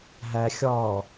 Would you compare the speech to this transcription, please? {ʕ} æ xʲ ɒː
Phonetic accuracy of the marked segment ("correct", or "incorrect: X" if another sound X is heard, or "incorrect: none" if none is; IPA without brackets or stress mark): incorrect: ɦ